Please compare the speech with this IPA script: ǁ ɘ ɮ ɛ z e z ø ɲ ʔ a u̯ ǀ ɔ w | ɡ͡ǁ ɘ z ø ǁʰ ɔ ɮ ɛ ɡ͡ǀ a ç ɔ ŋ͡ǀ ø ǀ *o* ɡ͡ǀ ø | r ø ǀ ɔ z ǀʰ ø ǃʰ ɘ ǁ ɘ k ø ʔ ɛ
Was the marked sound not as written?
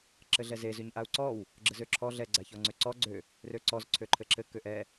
yes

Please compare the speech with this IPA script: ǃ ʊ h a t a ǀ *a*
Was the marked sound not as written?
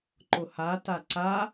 no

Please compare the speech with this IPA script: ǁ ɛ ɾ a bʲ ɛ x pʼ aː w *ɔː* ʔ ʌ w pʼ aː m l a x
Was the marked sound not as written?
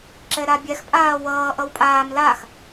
yes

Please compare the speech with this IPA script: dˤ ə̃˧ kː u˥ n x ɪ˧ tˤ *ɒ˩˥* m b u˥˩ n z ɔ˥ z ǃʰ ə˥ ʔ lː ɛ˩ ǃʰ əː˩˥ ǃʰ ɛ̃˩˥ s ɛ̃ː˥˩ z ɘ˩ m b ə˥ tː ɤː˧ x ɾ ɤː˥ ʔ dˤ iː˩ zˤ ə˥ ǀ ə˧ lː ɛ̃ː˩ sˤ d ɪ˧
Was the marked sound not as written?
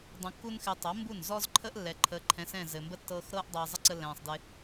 yes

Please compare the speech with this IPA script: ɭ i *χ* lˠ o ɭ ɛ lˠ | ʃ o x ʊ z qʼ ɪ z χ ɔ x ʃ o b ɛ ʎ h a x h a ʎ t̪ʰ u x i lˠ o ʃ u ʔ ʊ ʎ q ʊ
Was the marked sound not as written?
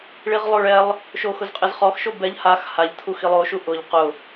yes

